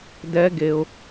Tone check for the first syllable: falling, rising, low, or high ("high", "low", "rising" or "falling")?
rising